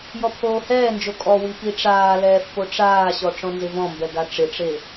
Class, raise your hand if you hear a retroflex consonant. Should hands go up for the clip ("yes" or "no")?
yes